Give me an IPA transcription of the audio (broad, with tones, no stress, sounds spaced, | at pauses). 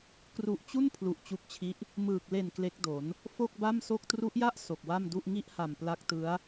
k r u˨˩ ʔ t͡ɕ u˥˩ n pʰ l u˨˩ ʔ t͡ɕ u˦˥ k̚ t͡ɕʰ i˦˥ ʔ | m ɯː˨˩ k̚ l e˨˩ n k l e˦˥ k̚ d o˩˦ n | f o˥˩ k̚ b a˥˩ m s o˥˩ k̚ t r u˦˥ ʔ j a˥˩ ʔ s o˨˩ k̚ w a˥˩ m d u˥˩ ʔ ŋ i˥˩ ʔ h a˨˩ m p l a˦˥ k̚ t ɯ˦˥ a̯